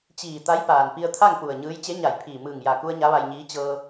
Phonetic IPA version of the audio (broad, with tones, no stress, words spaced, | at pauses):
t͡ɕiː˧˩ t̪a˧˥j paː˩npi˧ə̯t̪ʰa˥˨ŋ pu˧˩ə̯ ɲɯː˧˥j t͡ɕe˧˥ɲa˧˩j pʰiː˧˩ mɯː˧˩ŋja˧˩ku˧ə̯ ɲa˧˥ʋa˧jɲiː˧˥ t͡ɕɤː˧